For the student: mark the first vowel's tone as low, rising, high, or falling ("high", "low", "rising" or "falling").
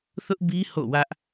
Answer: high